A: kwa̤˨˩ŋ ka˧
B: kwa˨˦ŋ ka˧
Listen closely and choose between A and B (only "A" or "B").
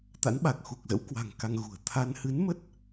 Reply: A